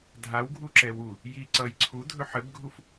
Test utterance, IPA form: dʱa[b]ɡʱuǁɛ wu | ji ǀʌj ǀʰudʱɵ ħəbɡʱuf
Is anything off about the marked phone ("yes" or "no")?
yes